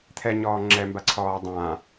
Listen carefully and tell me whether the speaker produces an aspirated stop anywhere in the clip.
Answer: yes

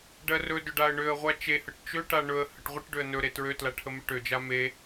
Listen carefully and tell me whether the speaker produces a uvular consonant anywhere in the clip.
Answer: yes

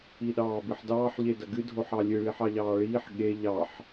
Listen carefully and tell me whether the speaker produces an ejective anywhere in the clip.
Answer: no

